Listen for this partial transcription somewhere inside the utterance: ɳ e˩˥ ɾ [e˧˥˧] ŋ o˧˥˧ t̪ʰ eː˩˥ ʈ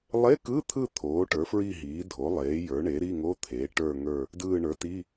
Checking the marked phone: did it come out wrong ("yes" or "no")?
yes